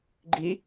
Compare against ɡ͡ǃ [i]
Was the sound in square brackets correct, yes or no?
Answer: yes